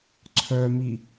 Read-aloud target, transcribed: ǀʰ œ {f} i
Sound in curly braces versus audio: incorrect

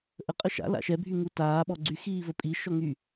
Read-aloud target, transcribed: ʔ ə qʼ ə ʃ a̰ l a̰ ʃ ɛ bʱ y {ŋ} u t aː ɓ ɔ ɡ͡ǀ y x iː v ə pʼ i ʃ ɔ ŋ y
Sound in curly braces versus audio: correct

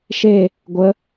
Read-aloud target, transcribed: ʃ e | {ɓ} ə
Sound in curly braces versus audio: incorrect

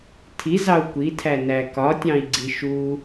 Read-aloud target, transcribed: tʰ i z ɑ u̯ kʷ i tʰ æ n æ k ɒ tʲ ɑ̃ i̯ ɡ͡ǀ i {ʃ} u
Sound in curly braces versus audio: correct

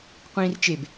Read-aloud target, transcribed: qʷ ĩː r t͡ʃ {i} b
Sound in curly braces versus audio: incorrect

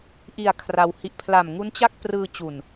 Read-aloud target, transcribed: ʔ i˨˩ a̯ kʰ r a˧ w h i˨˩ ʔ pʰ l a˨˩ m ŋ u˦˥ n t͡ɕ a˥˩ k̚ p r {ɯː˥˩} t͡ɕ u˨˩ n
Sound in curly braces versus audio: incorrect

